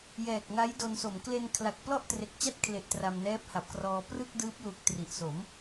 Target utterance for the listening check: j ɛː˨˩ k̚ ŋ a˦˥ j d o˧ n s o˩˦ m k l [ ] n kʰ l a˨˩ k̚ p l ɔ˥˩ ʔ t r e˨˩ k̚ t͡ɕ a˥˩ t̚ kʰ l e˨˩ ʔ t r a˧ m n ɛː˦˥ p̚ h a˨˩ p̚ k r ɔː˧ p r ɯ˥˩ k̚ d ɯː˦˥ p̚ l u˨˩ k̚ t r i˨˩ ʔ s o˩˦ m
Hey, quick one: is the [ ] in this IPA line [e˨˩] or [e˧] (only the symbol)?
e˧